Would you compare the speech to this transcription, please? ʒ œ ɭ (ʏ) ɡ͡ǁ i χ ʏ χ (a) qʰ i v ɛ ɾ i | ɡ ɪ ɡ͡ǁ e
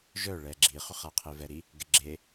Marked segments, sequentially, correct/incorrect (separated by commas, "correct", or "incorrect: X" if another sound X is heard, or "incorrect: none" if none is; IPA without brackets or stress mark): incorrect: ɛ, correct